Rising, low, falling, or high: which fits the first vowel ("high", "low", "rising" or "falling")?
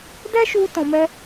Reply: high